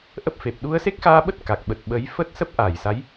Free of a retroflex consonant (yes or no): yes